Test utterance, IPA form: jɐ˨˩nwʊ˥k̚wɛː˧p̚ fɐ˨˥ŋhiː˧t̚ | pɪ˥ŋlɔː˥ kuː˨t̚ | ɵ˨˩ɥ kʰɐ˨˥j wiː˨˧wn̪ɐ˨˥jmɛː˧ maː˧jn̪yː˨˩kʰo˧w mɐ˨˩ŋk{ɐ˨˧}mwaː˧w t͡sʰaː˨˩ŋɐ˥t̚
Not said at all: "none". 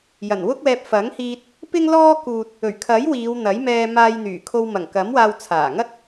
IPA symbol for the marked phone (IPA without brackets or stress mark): ɐ˨˥